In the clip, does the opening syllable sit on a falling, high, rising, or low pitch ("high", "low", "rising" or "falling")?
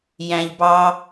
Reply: low